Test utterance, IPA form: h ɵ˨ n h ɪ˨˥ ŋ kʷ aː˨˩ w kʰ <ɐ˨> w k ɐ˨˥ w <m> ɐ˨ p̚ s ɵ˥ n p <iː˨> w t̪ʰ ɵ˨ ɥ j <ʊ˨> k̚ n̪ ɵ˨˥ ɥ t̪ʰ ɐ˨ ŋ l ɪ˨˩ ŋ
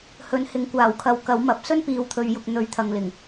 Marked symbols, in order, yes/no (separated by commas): no, yes, yes, yes